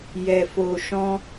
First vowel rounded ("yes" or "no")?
no